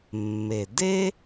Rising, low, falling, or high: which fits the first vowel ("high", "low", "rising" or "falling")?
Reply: low